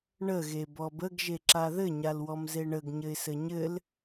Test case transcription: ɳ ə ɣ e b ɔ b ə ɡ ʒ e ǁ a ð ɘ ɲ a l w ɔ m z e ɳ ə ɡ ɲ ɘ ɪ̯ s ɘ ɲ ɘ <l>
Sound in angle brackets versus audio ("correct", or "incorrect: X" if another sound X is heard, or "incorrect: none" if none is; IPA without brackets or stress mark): correct